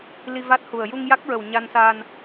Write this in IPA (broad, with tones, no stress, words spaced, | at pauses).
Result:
li˧va˦˥t̚hu˨˩ə̯ ju˧ŋja˦˥k̚ɹə˨˩w ɲa˧nsa˧n